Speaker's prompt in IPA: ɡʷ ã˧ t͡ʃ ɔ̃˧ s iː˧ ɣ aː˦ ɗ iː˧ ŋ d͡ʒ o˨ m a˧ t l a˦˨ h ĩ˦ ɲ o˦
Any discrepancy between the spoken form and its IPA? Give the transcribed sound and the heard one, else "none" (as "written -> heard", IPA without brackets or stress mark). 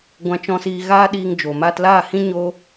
none